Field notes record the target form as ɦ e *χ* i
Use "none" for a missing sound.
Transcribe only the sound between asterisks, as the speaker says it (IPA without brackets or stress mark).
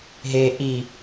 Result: ʔ